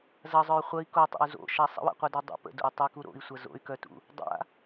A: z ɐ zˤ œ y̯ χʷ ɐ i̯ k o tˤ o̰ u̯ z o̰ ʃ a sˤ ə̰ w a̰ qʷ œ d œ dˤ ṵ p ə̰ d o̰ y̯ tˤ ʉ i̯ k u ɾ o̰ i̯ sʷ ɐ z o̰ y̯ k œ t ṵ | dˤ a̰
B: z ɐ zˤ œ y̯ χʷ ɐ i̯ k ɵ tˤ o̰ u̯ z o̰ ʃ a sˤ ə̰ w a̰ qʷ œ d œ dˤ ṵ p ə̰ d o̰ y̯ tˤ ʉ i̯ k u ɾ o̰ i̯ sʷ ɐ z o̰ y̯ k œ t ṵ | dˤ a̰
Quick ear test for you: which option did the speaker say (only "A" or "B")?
A